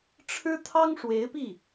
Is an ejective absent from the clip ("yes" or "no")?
yes